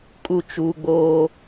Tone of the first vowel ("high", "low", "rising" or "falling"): falling